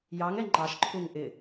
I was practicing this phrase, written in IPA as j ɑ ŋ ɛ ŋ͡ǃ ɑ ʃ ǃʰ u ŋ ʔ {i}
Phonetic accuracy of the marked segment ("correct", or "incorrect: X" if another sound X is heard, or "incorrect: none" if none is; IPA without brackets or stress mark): incorrect: ɪ